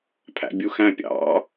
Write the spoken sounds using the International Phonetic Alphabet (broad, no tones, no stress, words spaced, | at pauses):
pʰæ̰bʲuxæ̃pʲɑ̰